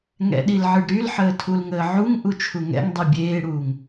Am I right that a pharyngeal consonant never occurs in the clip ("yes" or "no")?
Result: no